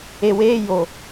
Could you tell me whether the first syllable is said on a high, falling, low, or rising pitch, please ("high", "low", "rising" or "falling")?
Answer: low